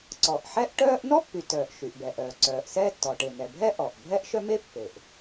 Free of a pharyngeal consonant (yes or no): no